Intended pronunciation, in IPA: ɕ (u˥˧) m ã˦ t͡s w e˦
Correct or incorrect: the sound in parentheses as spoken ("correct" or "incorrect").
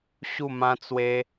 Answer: correct